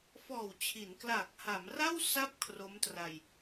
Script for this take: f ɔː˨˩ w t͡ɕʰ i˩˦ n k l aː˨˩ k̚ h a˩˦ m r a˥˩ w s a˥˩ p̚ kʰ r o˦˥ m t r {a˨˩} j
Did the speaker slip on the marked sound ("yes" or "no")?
yes